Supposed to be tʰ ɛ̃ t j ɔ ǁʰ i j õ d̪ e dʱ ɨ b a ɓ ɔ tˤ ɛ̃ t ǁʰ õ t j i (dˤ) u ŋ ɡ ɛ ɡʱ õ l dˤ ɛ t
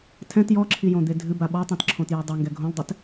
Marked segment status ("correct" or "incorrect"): correct